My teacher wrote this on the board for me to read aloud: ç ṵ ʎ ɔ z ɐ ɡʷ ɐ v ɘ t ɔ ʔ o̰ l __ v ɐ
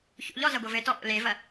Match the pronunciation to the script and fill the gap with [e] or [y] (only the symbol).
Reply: e